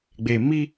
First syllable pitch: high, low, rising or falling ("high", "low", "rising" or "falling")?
low